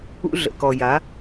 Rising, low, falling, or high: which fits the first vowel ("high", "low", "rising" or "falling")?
high